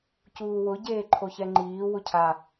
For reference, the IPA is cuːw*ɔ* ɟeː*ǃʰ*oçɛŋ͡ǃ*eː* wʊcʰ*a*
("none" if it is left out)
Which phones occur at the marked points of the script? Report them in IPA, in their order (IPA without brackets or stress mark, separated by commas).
ʊ, ǃʰ, iː, a